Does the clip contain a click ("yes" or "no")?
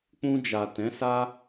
no